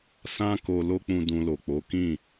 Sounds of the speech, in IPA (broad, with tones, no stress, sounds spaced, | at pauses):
s ã˦ k o˧ l o˦ k͡p ũ˧ d ũ˧ l o˨ k͡p o˨˦ k ĩ˦˨